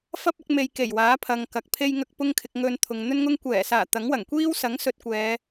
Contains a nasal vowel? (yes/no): no